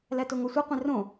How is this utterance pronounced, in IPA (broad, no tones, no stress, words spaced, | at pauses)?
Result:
lætoŋɔsʷɛ qʷẽrõ